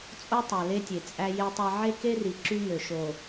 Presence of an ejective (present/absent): present